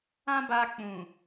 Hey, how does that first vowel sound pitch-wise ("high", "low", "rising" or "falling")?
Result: high